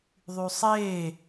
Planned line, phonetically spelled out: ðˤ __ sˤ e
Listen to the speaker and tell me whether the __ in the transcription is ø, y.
y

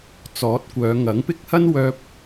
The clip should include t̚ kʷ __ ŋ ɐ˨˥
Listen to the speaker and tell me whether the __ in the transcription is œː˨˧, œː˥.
œː˨˧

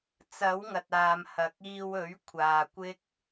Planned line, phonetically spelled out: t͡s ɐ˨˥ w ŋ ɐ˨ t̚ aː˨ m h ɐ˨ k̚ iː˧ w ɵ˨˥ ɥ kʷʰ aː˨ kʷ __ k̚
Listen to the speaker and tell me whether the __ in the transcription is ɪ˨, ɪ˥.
ɪ˥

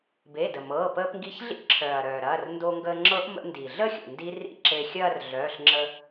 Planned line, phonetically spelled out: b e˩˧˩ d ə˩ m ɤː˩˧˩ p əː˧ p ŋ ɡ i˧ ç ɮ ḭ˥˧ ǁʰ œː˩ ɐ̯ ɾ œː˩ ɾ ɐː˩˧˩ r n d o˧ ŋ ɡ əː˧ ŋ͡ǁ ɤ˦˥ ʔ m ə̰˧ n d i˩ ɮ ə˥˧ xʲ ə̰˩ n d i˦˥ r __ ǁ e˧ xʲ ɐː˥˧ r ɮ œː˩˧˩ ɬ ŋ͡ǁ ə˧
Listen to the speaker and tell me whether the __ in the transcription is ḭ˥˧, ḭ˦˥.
ḭ˥˧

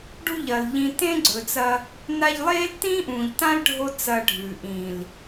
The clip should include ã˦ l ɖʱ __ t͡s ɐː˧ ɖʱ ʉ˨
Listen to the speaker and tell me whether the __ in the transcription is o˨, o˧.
o˧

